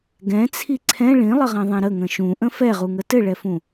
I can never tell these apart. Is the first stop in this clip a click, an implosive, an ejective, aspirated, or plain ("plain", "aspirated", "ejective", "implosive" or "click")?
plain